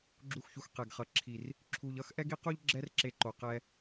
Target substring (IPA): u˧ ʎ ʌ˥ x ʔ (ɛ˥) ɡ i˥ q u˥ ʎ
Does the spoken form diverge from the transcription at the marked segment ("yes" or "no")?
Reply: no